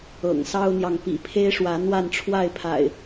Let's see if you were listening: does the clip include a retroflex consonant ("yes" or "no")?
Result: yes